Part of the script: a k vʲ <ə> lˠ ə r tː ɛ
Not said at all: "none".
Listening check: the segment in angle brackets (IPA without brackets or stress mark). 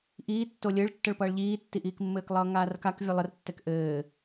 ʌ